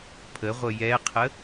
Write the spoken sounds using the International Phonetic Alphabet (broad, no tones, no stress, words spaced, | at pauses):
pʰəʁʷə jɛqʰə